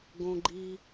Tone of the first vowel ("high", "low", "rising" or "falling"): low